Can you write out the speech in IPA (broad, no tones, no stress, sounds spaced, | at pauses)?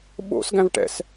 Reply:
ɓ o̰ s ɡ æ̃ v ʈ ɛ̰ s